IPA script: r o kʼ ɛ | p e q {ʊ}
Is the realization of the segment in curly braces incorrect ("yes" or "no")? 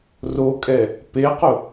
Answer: no